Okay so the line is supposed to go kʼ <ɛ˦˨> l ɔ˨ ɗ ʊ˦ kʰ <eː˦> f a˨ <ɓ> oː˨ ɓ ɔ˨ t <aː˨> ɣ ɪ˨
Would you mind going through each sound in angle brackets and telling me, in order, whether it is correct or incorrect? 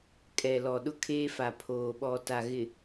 incorrect, correct, incorrect, incorrect

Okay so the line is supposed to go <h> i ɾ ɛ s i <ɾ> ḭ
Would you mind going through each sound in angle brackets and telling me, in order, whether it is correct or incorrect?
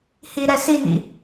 correct, incorrect

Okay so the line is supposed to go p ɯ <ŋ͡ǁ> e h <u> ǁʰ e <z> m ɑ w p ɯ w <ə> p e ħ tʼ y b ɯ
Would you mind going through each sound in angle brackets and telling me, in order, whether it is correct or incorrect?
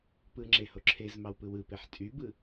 correct, incorrect, correct, incorrect

